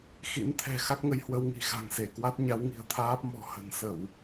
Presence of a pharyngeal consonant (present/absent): absent